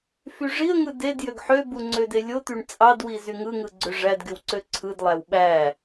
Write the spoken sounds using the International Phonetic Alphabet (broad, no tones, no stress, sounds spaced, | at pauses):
f y ʐ i ə̯ ŋ ɯ d e d j ø ɡ ħ ø b u ŋ͡ǀ ø d e lʲ o t̪ y ɳ t͡sʼ ɑ d w i z y ŋ ɯ ŋ ɯ ɡ͡ǀ ø ʐ æ d ɡ y w ǀ ø ǀʰ ɯ d lˠ æ w ɓ æ